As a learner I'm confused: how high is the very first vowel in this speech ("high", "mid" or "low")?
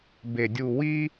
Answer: mid